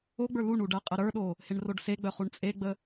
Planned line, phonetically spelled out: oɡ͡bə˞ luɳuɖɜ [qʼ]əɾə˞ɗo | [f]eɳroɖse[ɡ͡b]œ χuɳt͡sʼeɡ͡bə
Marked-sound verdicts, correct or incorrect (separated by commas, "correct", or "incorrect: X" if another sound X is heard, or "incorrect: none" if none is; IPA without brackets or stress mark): correct, incorrect: h, correct